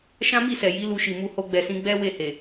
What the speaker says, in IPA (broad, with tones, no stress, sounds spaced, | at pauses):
ʃ ã˦ m i˦˨ s ɛ˨ j i˨˦ l u˧ ʃ i˨ m u˧ h o˧ ɡ͡b ɛ˨ s ĩ˨˦ ɡ͡b ɛ˦ w e˦˨ h e˨